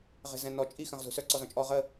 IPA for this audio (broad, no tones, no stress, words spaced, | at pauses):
ʁe̤zɛ̃nɔ t͡ʃʼi xə̃ʁ zṳsœ ǀɔzɔ̃t͡ʃʼɔ ʁə